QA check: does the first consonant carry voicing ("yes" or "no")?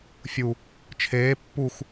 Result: no